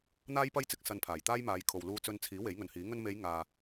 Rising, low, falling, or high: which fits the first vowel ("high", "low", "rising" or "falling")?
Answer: high